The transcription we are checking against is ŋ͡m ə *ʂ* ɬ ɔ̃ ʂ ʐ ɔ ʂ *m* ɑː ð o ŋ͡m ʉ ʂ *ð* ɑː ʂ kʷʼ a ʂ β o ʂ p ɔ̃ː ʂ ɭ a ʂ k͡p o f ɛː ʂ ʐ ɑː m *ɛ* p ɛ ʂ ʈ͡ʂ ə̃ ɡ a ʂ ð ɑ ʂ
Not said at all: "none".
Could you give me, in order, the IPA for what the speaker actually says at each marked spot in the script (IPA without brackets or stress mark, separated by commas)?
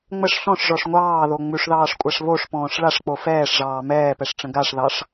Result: ʂ, ŋʷ, ð, ɛː